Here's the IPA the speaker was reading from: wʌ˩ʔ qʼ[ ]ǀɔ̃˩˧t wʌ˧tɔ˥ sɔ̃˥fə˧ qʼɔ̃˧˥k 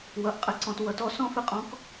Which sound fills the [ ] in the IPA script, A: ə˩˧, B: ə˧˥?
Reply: B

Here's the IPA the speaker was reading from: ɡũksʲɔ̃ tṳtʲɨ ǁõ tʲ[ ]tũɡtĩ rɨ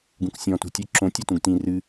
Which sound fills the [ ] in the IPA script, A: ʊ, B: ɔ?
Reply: B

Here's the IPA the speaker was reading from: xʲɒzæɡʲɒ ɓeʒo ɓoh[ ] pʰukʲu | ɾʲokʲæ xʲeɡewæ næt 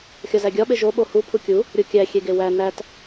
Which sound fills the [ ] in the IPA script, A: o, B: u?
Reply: B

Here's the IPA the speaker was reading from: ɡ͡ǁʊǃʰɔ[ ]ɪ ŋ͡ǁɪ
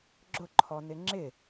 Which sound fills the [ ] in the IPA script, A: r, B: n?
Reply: B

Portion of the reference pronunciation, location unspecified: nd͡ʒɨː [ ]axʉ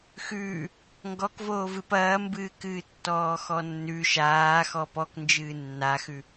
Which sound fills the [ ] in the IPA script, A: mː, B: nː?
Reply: B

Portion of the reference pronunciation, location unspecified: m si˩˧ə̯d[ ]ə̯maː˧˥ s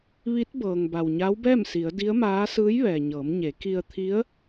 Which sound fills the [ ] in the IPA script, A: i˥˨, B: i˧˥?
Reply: B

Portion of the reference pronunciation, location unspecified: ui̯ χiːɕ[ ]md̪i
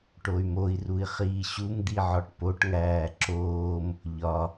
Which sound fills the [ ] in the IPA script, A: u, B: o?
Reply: A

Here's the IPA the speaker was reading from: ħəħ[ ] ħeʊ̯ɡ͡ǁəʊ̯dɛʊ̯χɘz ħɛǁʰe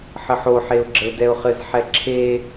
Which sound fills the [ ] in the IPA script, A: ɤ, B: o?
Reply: B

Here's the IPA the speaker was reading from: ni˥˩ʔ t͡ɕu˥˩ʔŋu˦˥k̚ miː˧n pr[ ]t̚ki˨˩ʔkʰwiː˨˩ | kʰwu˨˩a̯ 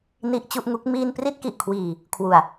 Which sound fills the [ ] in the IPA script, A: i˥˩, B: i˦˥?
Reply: A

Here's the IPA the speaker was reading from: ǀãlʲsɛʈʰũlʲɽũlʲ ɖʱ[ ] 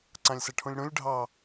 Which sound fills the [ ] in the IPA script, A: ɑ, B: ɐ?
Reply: A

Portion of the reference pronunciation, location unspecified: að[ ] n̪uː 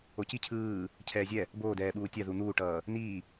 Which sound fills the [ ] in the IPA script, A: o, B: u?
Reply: B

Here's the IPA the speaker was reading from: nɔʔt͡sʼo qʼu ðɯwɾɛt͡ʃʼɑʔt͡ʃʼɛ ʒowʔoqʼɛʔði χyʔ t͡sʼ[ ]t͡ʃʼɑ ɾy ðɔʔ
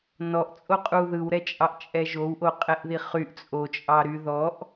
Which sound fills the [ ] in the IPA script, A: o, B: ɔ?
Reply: A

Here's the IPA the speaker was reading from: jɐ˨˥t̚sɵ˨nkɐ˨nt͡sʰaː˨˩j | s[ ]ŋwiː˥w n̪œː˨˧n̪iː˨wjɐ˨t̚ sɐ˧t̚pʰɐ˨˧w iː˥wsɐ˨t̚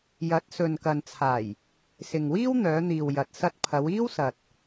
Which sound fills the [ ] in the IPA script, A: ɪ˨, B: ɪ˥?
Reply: A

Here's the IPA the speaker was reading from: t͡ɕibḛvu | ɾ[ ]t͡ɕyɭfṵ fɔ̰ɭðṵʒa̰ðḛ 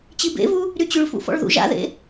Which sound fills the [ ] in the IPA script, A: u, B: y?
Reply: B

